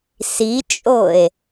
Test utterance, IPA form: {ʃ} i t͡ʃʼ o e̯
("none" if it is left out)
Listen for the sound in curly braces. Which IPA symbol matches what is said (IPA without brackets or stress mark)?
s